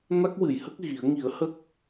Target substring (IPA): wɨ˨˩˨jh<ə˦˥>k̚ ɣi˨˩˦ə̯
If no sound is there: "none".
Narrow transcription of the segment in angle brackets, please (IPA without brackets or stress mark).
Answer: ə˦˥